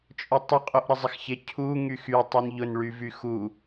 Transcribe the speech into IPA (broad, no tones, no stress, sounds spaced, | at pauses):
t͡ʃʼ ʊ tˤ ʊ qʼ o ʔ ɾ ə zˤ ɪ x ç ɪ cʰ u ŋ y x y tˤ u n ʎ ʊ n ɭ y v y x u